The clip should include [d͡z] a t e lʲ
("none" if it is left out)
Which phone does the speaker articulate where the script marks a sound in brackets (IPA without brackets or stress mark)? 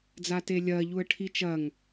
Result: d͡z